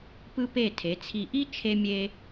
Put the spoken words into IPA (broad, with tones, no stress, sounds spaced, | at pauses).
p ɯ˧ p e˧˩ tʰ e˩˧ t͡sʰ i˧˩ ʔ i˥ t͡ʃʰ e˧ mʲ e˧